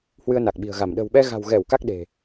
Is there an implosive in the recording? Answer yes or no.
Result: yes